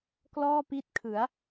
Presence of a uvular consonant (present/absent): absent